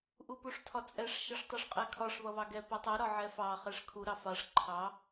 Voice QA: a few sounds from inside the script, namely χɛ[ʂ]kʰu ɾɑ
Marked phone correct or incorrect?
correct